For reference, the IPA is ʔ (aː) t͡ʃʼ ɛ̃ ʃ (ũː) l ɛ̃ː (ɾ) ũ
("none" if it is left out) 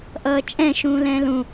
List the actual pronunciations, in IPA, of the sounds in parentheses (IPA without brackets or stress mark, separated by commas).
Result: ʌː, ũː, l